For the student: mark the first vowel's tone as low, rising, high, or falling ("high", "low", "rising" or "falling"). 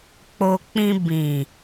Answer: low